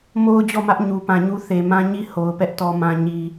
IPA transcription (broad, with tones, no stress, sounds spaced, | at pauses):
m o˦ ʊ̯ d͡ʑ ɔ˦˨ m ä˦ ʔ ɲ u˨ p ã˨ ɲ u˦ θ e˨ m ã˦ ɲ i˦˨ h o˨ ʊ̯ p ɛ˦ ʔ t ɔ˦ m ã˦ ɲ i˦